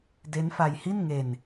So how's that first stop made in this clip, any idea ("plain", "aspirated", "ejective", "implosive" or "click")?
plain